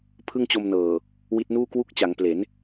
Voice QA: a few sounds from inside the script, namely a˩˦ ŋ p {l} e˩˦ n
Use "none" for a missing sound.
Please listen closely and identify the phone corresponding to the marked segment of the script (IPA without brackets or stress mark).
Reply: l